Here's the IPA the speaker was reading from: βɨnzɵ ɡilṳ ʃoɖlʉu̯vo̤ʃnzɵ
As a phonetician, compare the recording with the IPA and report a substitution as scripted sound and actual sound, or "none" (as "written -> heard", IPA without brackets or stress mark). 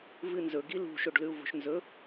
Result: β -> v